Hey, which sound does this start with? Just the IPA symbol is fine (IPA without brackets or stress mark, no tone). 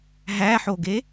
ɦ